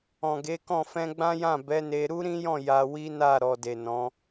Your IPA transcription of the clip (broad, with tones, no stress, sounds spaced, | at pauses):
ɔ̃˨ ɡ e˨˦ k ɔ̃˦˨ f ɛ̃˧ ɡ͡b ã˦ j ã˦˨ b ɛ˨˦ n e˧ ɾ u˦ ɾ ĩ˦ j ɔ̃˦˨ j a˧ w i˦ n a˦˨ ɾ ɔ˨ d e˨ n ɔ̃˨˦